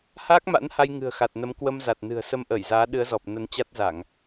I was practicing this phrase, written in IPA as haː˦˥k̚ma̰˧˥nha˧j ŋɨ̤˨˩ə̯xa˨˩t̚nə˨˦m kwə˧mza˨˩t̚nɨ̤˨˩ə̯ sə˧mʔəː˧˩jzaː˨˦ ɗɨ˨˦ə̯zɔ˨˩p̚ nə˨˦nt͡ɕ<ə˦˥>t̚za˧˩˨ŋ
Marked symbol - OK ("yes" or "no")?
no